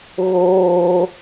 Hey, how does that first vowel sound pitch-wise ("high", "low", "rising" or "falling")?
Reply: high